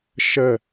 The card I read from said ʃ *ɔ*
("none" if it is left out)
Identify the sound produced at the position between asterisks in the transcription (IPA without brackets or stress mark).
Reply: ə